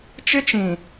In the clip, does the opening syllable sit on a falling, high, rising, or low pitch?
high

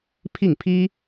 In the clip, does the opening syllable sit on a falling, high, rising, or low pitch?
falling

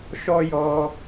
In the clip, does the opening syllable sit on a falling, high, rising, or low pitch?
high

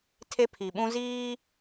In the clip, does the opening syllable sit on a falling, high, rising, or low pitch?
high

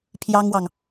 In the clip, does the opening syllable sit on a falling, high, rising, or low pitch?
high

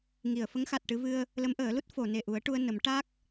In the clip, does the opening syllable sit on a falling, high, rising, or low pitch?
low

